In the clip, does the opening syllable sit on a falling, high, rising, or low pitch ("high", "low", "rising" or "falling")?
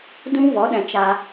high